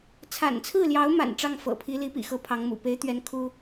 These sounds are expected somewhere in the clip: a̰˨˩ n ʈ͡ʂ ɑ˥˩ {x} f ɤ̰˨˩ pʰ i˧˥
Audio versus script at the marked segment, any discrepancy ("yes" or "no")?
yes